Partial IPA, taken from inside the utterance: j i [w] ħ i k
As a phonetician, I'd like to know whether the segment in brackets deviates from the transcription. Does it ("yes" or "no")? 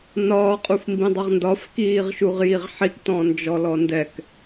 yes